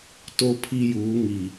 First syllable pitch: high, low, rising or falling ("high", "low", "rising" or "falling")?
high